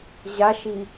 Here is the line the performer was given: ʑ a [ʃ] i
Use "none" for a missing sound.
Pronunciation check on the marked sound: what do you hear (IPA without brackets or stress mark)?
ʃ